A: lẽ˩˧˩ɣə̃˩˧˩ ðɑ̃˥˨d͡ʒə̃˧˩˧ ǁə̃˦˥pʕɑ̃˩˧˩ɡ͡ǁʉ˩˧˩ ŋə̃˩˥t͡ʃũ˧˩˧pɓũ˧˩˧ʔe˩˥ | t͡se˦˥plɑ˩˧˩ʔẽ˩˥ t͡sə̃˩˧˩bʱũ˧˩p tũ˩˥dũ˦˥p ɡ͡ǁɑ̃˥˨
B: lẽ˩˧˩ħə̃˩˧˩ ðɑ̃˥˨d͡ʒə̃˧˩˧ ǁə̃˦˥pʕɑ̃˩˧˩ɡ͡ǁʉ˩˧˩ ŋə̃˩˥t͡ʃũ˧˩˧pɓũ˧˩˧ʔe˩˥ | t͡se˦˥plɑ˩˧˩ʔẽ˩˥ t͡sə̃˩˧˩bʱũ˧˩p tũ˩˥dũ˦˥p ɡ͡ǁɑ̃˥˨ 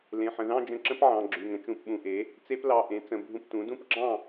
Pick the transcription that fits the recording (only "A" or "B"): B